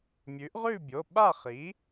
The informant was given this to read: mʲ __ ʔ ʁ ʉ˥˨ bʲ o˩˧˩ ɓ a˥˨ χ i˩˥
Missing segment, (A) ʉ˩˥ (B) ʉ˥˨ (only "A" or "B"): A